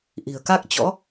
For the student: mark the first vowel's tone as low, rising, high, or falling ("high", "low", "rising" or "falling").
low